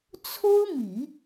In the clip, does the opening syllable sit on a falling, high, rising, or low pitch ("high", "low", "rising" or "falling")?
high